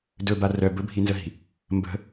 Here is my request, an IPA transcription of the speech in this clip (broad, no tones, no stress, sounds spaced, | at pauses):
d ɵ b a r œ b ɵ bʱ i n z ə ɦ i̤ | m b ə̤